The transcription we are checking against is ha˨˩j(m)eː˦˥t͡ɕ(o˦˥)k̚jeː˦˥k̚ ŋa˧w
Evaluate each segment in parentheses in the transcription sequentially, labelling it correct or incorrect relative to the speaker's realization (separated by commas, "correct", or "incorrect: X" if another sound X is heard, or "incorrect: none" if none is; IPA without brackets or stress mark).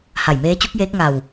correct, incorrect: u˦˥